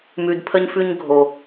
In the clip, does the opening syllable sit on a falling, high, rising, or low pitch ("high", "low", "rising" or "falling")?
high